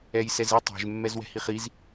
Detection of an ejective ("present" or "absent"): absent